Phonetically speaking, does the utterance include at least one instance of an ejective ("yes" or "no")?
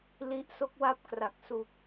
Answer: no